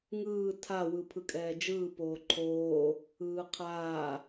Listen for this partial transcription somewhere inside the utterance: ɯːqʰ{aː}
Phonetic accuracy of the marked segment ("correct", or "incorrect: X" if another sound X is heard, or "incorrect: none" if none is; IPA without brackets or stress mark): correct